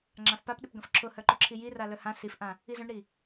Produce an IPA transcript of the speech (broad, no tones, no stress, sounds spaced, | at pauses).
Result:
ŋ͡ǁ ã f p a p ɗ ɪ p ɡ ɐ̃ f ǁʰ ʊ h œ ǃ ʊ ǁʰ i j i r a l œ h ã s i f ʔ ã | i z œ̃ ɳ ɾ i